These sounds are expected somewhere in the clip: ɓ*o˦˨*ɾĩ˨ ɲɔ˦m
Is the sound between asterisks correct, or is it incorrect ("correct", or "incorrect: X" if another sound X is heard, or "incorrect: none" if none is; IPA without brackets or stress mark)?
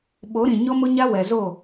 incorrect: o˨˦